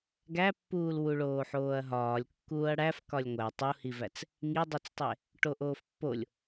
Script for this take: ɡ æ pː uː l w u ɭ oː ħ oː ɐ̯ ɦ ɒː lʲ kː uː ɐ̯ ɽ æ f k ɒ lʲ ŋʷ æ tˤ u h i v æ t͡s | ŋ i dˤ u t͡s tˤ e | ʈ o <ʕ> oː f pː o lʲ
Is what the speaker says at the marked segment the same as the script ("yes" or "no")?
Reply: no